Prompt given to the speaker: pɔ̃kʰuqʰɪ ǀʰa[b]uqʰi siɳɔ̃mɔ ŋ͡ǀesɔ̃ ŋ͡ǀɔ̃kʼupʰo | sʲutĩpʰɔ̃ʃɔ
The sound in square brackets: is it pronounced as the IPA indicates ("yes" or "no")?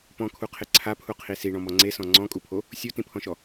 no